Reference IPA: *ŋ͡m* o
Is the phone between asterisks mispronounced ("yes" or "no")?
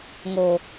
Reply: yes